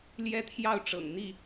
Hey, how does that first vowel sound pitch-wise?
high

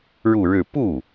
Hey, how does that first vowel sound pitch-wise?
falling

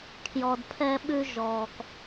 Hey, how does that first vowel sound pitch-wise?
low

